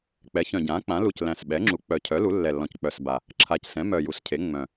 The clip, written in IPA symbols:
k͡p ɛ˩˥ ç œ̃˨˩ ɟ ãː˩˥ k͡p ã˩˥ l u˨˩ c l æ̃˨˩ s ɓ ɛ˩˥ ŋ͡ǁ u˩˥ k͡p œ˨˩ cʰ œ˩˥ l u˩˥ lː ɛ˨˩ lː ɔ̃˨˩ c k͡p œ˨˩ s b a˨˩ | ǁʰ a˨˩ c s ɛ̃˩˥ m œ˨˩ j u˩˥ s cʰ e˩˥ ŋ͡m œ̃˨˩

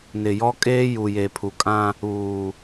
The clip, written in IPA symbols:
n ɪ˨ j ɔ˦ kʼ eː˦ j u˨ j e˨ pʰ u˨ kʼ ã˦ | uː˨

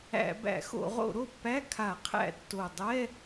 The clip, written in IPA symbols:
æ̰˧˩˧ b æ̰˧˩˧ x o̰˧˩˧ ʁ o̰˧˩˧ ɾ o˥˩ pː æ˧˥˧ kʰ a˧˩˧ qʰ æ̰˧˩˧ tː o˨˩ dˤ ɛ˧˥˧

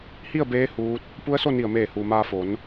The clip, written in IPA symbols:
h i˥˨ ə̯ b eː˧˥ h uː˧˥ t̚ | p u˧˥ ə̯ s o˥˨ n i˧˩ ə̯ m eː˧˩ h uː˩ m aː˧ f o˩˧ n

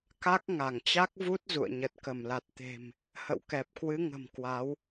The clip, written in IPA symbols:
k a˦˥ k̚ ŋ a˧˩ ŋ t͡ɕ a˦˥ k̚ v u˦˥ t̚ z ṵ˧˨ ə̯ ɲ ə˨˩ t̚ k ə˧˩ m l a˨˩ t̚ t̪ e̤˨˩ m | h ə̰˧˨ w k ɛ˨˩ p̚ k w ɨ˨˦ ŋ ə̤˨˩ m k w a˨˦ w

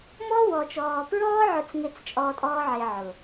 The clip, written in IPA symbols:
m ɔ˦ w ɔ˨ t͡ʃ ɔː˨ p ɹ ɔː˦ ʕ ʊ˦˨ t͡s ŋ e˦˨ t͡s t͡ʃʼ ɔː˧ tʼ ɔː˦ ʕ e˧ ʕ ʊ˨

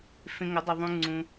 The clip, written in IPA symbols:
f ẽ˧ ŋ ʊ˨˦ dˤ ʊ˧ ðˤ ũ˧ ŋ͡ǀ ũ˧

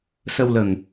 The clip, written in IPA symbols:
s ə˧ w l ə˨˩ ŋ

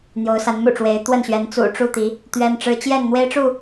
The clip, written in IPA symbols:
n̪ j o˨˦ ʊ̯ s a˨˦ n m ṵ˨˩ ʈ͡ʂ w e˨˦ ɪ̯ t̪ w ə˥˨ n ɕ ɥ ɛ˨˦ n t͡s ṵ˨˩ ʈ͡ʂ u˥˨ t̪ i˨˦ | t̪ ɥ ɛ˦ n ʈ͡ʂ ɻ̩˦ t͡ɕ j ɛ˥˨ n n̪ w e˦ ɪ̯ ʈ͡ʂ u˥˨

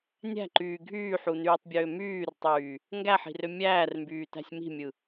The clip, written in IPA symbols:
nʲ æ̤ ǃ yː ɡʱ yː ħ u n yː tˤ bʲ øː m yː r tˤ yː | ŋ ɡ æ ħ i̤ r ø mʲ æː r m b yː t æ̤ sʲ m i̤ mʲ ɯ

